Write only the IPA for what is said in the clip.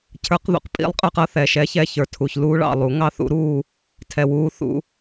cʰ ə˞˨˦ q ð ṵ˨ q pʼ ḭ˨˦ lˠ qʼ ə˞˦ q ʌ˦ θ ɛː˨ ʃ ɛː˦ ç ɛ˦˨ ç ə˞˨ tʰ u˨ ç l uː˦ ɭ ɑ̰˦˨ lˠ u˨˩˦ ŋ ɑ˦ θ ṵ˨˦ ɾ uː˦˨ | tʰ ɛ˨ w uː˨˦ θ ṵ˨

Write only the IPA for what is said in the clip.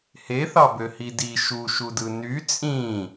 h e θ ɑ b ø h i d i ʃ u ʃ u d ɯ n y t͡sʼ ĩ

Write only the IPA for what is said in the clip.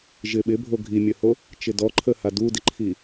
ʒ ɪ ɓ ɪ bʱ o ɡʱ i mʲ ə h o | t͡ʃ ɪ d ɔ ǃʰ ə h a d u d ɪ ǃʰ i

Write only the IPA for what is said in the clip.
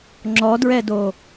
ŋ͡ǁ ɔ d ɹ ɛ d o

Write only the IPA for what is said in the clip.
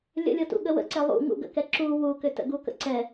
lʲ ə̰ lʲ ɤ t ṵ ɠ ə w ə̰ ǀ ɛ lˠ ṵ ŋ ṵ ɡ ə̰ k ɛ ǁ u w u k ʏ t ə̰ ɡ u k ə̰ ǀ ɛ

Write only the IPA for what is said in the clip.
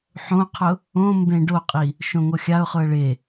ħ õ qʰ ʊ | õ m b ẽ ɖ o qʼ i | ʃ õ ŋ o xʲ a ʊ̯ χ ʊ ə̯ ɭ e

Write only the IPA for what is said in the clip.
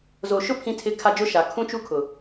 z o˨ ʃ ʊ˦ pʰ ĩ˦ tʰ ɪ˦ kʰ a˦ d͡ʒ ʊ˦ ʃ a˨ kʰ ũ˦ t͡ʃ u˦ kʰ ʊ˨

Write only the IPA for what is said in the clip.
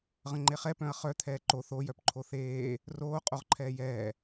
ʁ ə̃ ŋ͡ǃ e χ ɛ p œ̃ ɐ̯ χ œ t̪ʰ ɛː ǃ o θ o j œ p ǃʰ o θ eː | r oː qʼ o ʁ ǃʰ ɛː j ɛː

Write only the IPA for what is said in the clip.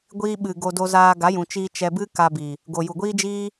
ɡʷ iː˦ ɓ ɨ˨ ɡ o˧ d o˧ z aː˧ ɡ a˨˦ j ũ˨ t͡ʃ iː˧ t͡ʃ ɛ˧ b ɨ˦ k a˧ b i˨ | ɡ o˨ j u˨ ɡʷ iː˦ d͡ʒ iː˦

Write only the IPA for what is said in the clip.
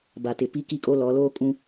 b a˨ t ɪ˨ p i˦ k i˦ kʼ o˦ l ɔ˨˦ l oː˦ kʼ ũ˦

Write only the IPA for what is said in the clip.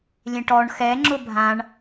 lʲ ẽ ʈ ɔ ɳ x ɛ ŋ͡ǁ ʊ bʱ ã ɳ

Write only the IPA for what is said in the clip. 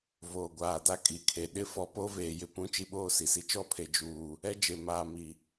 v oː˨ ɡʷ aː˨ d a˦ kʼ i˨ kʰ e˨ ɗ ɪ˦ f ɔ˦ p o˦ v eː˨ j ɪ˦ p ũ˦ t͡ʃ i˦ ɓ oː˦ s i˨ s i˦ t͡ʃ ɔ˦˨ pʰ e˨ d͡ʒ uː˨ | ɛ˦ d͡ʒ e˨ m aː˨ m i˨

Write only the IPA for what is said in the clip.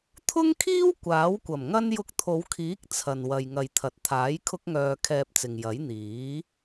t̪ʰ ʊ˥ ŋ kʰ iː˥ w kʷ aː˨˥ w kʷ ɐ˨˩ m ŋ ɐ˥ n j ʊ˧ k̚ t̪ʰ o˨˧ w kʰ iː˨˥ k̚ t͡sʰ ɐ˨ n w ɐ˨ j ŋ ɐ˨ j t̪ʰ ɐ˨ t̚ t̪ʰ aː˨˥ j kʰ ʊ˥ k̚ ŋ œː˧ kʰ ɛː˧ p̚ t͡s ɪ˨ ŋ j ɐ˨˥ j n̪ iː˨˥

